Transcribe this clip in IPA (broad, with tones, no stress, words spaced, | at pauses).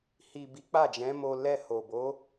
hi˨ bi˨˦k͡pa˦˨d͡ʒɛ̃˨˦mo˧ lɛ˧ho˨bo˨˦